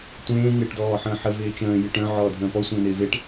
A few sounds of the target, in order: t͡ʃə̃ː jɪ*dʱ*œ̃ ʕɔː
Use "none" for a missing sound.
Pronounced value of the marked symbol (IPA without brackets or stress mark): ʈ